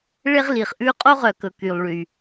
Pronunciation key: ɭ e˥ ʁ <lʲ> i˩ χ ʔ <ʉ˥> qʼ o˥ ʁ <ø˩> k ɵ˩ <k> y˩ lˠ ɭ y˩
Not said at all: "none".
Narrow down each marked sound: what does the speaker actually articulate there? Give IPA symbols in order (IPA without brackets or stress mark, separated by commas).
l, ʉ˥, œ˩, k